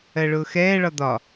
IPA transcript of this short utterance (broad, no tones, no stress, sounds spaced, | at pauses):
ɜ ɭ ʊː x ɛː ɭ ɒ d̪ ɒ